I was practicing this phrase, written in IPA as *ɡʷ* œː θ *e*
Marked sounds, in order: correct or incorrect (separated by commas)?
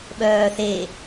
incorrect, correct